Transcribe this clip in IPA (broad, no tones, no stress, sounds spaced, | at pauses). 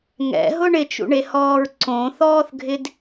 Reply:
ŋ ɛ̰ ɦ ʊ ɳ ɪ t͡ʃ ṵ ɳ e h ɔː ɹ ǀ õ θ ɔː θ ɡʱ ɪ d